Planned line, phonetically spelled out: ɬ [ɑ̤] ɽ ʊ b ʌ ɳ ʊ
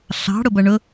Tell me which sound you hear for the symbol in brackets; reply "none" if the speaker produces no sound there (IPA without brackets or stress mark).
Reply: ɑ̤